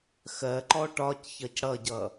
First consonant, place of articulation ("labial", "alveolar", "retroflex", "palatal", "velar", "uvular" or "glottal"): velar